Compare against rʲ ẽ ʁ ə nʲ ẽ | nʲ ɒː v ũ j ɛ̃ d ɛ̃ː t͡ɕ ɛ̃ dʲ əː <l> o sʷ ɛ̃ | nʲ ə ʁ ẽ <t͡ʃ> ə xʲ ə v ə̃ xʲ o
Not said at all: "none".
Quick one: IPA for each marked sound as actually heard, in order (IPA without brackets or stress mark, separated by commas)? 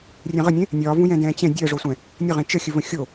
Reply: ʐ, t͡ʃ